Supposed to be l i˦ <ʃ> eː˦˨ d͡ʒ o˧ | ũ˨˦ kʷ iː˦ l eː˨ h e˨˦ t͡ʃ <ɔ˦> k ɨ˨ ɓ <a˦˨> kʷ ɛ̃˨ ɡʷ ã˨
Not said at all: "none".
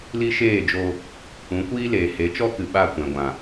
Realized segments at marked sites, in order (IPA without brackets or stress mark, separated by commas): ʃ, ɔ˦, a˦˨